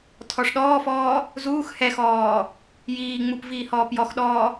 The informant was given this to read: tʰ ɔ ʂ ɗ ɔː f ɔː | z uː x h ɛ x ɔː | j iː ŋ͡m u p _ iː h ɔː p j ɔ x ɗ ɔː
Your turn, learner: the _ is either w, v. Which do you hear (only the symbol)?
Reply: v